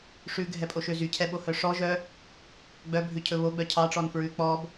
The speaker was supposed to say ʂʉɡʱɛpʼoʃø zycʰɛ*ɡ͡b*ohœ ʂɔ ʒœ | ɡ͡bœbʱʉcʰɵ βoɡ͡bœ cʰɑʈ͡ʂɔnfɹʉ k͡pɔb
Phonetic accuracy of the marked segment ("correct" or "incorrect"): incorrect